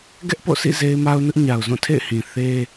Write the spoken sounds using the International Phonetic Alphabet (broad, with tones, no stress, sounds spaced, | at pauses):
ɡ ɛ˦ ʔ p o̰˦˨ sʰ ḭ˦˨ z e˦ ɪ̯ m a˦ ʊ̯ n ʊ˦ ʔ ɲ a˨ ʊ̯ z ũ˦˨ tʰ ḛ˦˨ ɪ̯ h ĩ˨ θ e˦